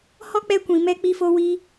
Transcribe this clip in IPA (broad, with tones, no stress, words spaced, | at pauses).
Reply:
hɔ˦k͡pɛ˧ kʷĩ˨mɛ˦ k͡pi˦fo˦wi˦